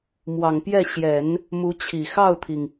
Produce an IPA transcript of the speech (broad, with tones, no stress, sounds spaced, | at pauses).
m w ɑ˨˩ ŋ p j ɛ˥˩ ɕ j ɛ˨˩˦ n | m u˧˥ t͡ɕʰ i˨˩ x ɑ˥˩ ʊ̯ t̪ʰ i˩ ŋ